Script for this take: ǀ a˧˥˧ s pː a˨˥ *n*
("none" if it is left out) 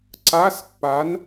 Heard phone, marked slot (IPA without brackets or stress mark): n